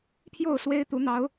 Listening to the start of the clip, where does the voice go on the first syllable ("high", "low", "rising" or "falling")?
falling